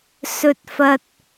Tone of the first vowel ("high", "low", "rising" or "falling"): high